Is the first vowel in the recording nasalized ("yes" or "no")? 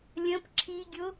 yes